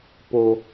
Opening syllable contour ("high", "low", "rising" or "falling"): low